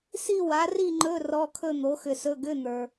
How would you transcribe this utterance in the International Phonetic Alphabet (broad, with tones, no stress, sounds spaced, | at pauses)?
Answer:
s i˥˧ w a˨˥ r i˥˧ ŋ͡ǃ ɵ˧˥˧ r ɔ˧˥˧ kʰ ɵ˥˧ n̪ o˨˥ x ʏ˧ s ɵ˧˥˧ ɡ ʏ˧˥˧ n̪ ə˞˧